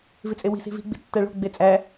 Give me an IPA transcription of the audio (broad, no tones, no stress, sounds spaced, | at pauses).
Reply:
v i t͡sʼ e w i̤ s i̤ v i̤ ɡ͡b i̤ tː æ ɭ o̤ ɡ͡b e t͡sʼ æ